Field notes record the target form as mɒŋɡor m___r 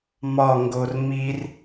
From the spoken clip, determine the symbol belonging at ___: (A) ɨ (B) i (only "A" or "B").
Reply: B